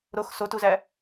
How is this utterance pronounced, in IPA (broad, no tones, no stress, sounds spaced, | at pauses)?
ɾ o x s o t u z æ